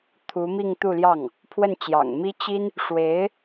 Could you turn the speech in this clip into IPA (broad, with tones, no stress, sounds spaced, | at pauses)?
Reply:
t̪ʰ u˧˥ m i˥˧ ŋ t̪ u˥˧ l j ɑ˥˩ ŋ | pʰ w ə˥˩ n t͡ɕ j ɑ̰˨˩ ŋ m i˥ t͡ɕ i˥ n | ʂ w e˧˥ ɪ̯